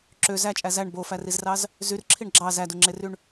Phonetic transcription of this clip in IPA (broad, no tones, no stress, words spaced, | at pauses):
ǁø zæt͡ʃʼæ zæɳ bofærizrɑz | zyrǁʰiɳ ɡ͡ǁɑ zæduŋ͡ǁeryɳ